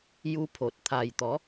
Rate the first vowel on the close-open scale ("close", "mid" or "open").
close